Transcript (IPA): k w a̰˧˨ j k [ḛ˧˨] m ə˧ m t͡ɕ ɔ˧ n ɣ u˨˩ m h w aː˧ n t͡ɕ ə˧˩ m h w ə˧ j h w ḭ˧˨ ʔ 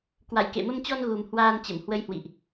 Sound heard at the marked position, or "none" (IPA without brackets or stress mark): ḛ˧˨